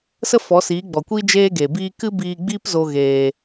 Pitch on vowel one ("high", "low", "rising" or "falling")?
high